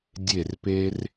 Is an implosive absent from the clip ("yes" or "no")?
yes